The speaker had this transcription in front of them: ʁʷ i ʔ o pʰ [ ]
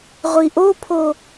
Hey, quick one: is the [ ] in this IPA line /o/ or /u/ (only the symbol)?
o